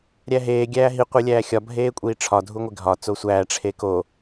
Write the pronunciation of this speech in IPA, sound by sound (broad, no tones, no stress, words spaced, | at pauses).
ɾʲæɦeː ɡʲæːɦi qʷilʲæːxʲɒ bʱeːkʷʼiːʈ͡ʂʰɒ dʱuŋʷeɡʱɒ t͡sosʷæː ʈ͡ʂʰeko